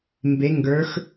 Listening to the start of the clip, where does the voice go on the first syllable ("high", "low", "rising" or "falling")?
rising